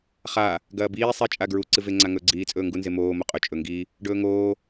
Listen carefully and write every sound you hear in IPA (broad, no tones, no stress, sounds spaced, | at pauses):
χ a | ɡ ɐː b iː sˤ i t͡ʃʼ a ɡ ɹ u ǀ ɨ v e ŋ͡ǀ a ŋ ɵː ɡ͡ǀ iː t͡sʼ ɵː ŋ ɡ u n z e m oː m o qʼ ɵ t͡ʃʼ ɵ ŋ ɡ i | ɖ ɵː ŋ oː